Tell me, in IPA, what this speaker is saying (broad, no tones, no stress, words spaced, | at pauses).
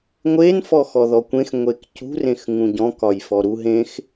ŋʷen fɔxɔðɔkʷẽx ŋʷekcṳr ẽxŋũɟɔ̃k ɒjfɔɾu ɦẽx